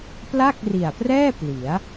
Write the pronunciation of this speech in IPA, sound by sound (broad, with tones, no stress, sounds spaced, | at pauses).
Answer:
p l a˥˩ k̚ r i˨˩ a̯ p r ɛː˥˩ p l i˩˦ a̯